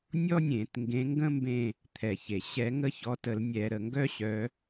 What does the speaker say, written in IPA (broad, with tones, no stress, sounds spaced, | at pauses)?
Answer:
nʲ ɔ˥ nʲ ẽ˧˩˧ t ŋ ɡ ẽ˨˦ ŋ ɡ ə̃˥ m b ẽ˦˨ | t̪ʰ ɛ˩ ç e˩ ɕ ɛ˧˩˧ ŋ ə˦˨ ç ɔ˨˦ t ə˧˩˧ l nʲ ɛ˧˩˧ ɾ ə˩ ŋ ɡ œ˥ ɕ œ˨˦